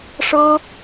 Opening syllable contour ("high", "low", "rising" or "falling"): high